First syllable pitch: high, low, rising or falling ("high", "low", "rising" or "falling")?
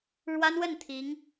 high